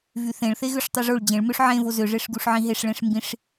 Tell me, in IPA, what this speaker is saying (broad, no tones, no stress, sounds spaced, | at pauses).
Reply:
v y θ ẽ ɭ θ e ɣ ø ʂ tˤ y ʐ o ɭ d͡ʑ ẽ ɭ m ø ʂ ʕ ẽ v o z ø ʐ e ʂ ɡ u ʂ ʕ ĩ ɦ e ʂ ɭ ẽ ʂ m b ĩ ʂ